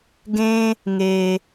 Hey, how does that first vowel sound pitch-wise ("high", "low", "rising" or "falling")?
high